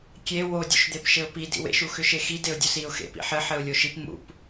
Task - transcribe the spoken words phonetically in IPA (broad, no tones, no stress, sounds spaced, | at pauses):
kʲ e w o dʲ ṵ ʃ d̪ e p ʃ ɘ ʊ̯ p i d ḭ w ḛ ʃ u x ʏ ʃ e x i d e ʊ̯ dʲ o s i ʊ̯ x ḛ p ḭ ħ ɘ ħ ɘ ʊ̯ lʲ o ʃ i p m ṵ p